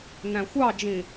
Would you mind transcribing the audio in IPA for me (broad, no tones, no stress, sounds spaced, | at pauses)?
n æ̃ xʷ ɑ d͡ʒ ĩ